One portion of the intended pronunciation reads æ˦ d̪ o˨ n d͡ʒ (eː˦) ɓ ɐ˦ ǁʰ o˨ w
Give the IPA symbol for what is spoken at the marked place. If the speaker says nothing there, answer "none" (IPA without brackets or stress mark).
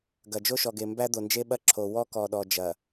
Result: e˦